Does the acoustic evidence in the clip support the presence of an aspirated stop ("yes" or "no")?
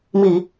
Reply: no